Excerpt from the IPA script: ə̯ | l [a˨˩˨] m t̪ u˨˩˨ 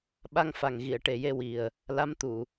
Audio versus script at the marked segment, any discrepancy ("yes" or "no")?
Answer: yes